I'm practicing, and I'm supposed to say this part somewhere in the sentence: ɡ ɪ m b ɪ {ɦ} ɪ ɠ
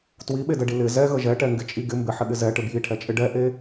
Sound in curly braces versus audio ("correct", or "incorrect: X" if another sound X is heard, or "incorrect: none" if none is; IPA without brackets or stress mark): incorrect: ħ